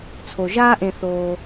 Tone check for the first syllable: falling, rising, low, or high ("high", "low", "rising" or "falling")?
low